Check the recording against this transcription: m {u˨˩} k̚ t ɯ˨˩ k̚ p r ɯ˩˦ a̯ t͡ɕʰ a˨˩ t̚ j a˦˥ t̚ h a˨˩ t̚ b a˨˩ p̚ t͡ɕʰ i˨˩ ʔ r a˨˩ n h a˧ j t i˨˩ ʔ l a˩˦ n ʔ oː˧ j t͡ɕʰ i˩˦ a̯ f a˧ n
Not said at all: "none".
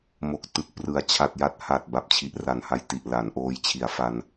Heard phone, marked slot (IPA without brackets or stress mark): o˨˩